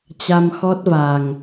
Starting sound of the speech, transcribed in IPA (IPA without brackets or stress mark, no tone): t͡ɕ